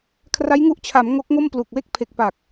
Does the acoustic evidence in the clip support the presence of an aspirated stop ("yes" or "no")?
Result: yes